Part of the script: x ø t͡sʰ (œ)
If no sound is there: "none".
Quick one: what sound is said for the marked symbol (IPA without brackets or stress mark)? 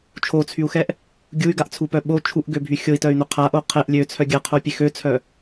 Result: œ